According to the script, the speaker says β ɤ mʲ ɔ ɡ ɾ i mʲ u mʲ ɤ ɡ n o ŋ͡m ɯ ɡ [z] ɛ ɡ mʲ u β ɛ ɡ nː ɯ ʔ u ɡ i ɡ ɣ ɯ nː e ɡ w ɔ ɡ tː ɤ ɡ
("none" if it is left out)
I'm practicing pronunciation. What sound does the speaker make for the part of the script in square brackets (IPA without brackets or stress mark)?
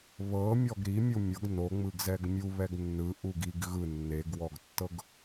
z